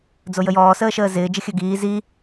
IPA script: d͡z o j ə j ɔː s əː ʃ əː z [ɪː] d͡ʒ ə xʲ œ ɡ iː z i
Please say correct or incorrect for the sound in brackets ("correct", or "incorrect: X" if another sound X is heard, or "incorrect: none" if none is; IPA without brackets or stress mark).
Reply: correct